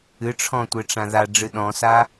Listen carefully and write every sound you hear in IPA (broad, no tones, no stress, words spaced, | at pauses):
ɨʈ͡ʂʰɔ̃tʷe ʈ͡ʂãða ɖ͡ʐɨɗɔ̃sa